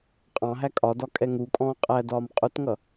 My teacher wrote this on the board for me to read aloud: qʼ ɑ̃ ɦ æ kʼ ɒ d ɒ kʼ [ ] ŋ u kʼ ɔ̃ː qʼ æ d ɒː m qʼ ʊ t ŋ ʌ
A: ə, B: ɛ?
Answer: B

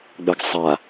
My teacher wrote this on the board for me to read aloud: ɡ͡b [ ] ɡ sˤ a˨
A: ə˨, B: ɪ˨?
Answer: A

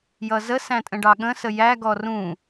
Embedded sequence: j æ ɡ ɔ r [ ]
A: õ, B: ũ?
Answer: B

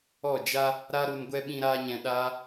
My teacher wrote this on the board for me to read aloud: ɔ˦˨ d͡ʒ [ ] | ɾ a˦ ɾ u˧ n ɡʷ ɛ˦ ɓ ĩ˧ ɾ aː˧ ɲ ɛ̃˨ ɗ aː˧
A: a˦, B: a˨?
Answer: A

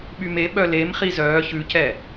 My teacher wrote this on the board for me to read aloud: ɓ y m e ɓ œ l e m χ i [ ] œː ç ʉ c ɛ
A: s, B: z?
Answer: B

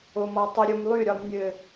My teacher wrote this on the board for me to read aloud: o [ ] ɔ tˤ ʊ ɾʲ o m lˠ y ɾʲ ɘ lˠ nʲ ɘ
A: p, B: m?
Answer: B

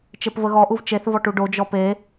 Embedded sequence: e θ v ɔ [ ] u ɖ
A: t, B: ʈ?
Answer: B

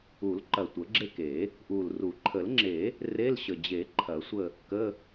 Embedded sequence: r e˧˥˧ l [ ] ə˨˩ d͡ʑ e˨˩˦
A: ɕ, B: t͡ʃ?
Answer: A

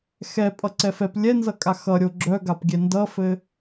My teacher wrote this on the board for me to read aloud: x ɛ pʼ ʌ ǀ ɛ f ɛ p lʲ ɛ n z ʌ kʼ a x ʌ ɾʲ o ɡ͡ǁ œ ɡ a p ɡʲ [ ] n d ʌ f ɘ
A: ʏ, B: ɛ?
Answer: B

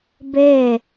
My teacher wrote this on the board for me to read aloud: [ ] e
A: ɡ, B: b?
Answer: B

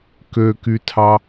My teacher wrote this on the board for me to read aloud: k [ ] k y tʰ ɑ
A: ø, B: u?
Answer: A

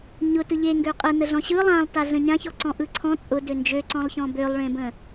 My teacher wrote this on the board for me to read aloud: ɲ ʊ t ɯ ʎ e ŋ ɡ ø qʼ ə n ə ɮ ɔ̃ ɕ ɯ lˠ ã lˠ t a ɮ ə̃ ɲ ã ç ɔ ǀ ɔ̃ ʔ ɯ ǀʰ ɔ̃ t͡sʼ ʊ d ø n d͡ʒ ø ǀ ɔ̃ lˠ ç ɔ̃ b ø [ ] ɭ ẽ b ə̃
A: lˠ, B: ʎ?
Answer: A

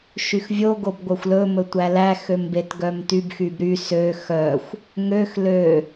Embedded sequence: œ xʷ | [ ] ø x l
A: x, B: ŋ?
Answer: B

